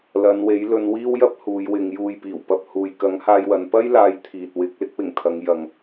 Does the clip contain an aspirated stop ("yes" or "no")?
yes